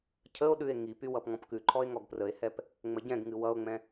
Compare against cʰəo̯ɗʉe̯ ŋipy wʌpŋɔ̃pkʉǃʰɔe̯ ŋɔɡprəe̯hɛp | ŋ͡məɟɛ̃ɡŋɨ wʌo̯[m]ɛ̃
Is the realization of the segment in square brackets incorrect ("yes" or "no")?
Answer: yes